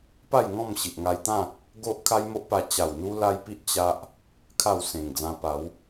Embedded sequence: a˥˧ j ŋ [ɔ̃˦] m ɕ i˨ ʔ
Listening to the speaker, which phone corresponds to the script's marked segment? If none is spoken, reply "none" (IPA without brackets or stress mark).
ɔ̃˥˧